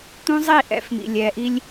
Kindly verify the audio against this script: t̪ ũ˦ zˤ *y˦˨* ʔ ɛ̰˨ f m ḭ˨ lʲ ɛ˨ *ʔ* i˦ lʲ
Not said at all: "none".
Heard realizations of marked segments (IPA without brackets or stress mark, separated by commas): i˦˨, ʔ